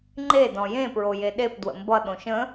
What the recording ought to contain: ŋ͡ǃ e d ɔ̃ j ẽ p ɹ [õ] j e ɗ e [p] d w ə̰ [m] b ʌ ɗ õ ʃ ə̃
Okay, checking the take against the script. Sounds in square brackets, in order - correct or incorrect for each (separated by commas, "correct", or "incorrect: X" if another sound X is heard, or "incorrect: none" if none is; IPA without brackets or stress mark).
incorrect: o, correct, correct